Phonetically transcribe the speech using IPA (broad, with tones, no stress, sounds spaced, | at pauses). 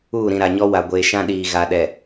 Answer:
uː˦˨ ɾ ĩ˨ ɾ a˨ ɲ ɔ˦ w a˨ ɡʷ eː˨ ʃ ã˦ ɗ iː˨ ɣ a˨ ɗ ɛ˨